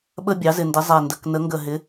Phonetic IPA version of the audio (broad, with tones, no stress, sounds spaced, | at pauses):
ɓ ə˧ bʲ ɑ˩˥ z ɪ˧˩ n d ɪ˩˥ zˤ ɛ˧˩ n d ə˩˧˩ k n ə˩˥ ŋ ɡ ə˧˩ ɦ ɪ˩˥